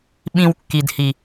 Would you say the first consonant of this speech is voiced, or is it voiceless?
voiced